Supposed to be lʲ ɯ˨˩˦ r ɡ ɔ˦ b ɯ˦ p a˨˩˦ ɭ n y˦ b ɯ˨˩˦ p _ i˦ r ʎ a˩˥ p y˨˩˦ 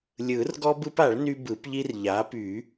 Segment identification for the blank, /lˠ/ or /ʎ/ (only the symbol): ʎ